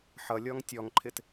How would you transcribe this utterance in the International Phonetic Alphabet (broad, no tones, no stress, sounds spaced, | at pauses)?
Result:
ħ ʌ lʲ ɔ ŋ tʲ ɔ ŋ ǃʰ ɪ t